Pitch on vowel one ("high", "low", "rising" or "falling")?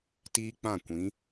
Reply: high